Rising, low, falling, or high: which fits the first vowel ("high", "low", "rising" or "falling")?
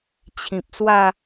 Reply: low